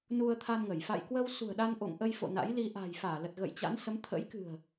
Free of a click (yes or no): yes